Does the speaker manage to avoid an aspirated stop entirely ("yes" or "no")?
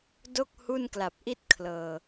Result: no